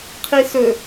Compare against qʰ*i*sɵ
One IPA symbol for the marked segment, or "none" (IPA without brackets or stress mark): i